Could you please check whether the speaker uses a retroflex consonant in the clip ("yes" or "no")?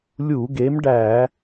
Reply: yes